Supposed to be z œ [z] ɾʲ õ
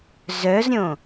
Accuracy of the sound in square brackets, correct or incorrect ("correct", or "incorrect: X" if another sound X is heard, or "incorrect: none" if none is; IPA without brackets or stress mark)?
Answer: correct